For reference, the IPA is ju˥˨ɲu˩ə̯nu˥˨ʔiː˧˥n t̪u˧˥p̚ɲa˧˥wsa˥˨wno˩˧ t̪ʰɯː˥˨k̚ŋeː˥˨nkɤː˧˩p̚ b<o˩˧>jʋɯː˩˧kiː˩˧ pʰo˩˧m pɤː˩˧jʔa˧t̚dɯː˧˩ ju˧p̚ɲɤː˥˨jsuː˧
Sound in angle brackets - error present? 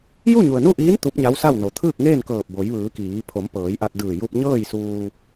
no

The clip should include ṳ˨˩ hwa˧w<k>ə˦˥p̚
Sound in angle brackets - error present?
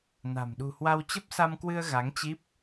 yes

